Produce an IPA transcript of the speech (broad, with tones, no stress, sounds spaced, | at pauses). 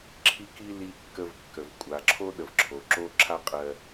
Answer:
ǁʰ i˧ k i˧ l i˧ kː ə˧ v kː ə˩ v kʷʼ a˩ ǁʰ o˥ ɗ ə˩ v ǁʰ o˩ ǁ o˥ ǁʰ a˥ qʼ ɜ˧